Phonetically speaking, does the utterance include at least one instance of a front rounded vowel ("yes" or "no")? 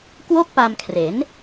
no